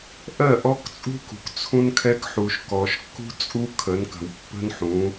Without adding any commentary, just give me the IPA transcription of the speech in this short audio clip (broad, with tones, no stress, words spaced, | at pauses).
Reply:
ʔɜ˦˨ʔɔ˦kt͡sʼṳ˦kṳ˨k t͡sʰũ˦nkʰɛ˦kħu˨ʃ kɔ˨ʃkːṳ˦t͡sʼu˦ kʰə˨˦nkə̤˨wpːə̤˦nħũ˨˦